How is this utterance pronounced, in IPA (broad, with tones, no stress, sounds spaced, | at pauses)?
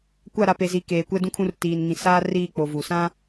kʷ a˦˨ ɾ a˨ p e˨ z i˨ k eː˨ kʷ ɛ˦ d ũ˦ kʰ ũ˦ r t iː˨ n ŋ ĩ˨ s aː˦ r iː˦˨ k͡p o˨ v u˨ s ã˦